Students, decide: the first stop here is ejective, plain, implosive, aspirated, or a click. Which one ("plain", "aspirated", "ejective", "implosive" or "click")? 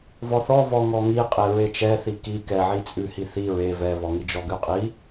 ejective